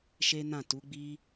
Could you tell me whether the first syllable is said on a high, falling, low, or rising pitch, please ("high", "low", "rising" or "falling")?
high